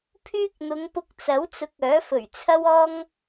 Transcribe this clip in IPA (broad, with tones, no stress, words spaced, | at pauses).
pʰyː˥k̚ n̪ʊ˨˧ŋpʊ˧k̚t͡sɐ˨˥wt͡sʊ˨˥k̚ œː˨˥fɵ˨˩ɥt͡sʰɐ˥wɔː˥ŋ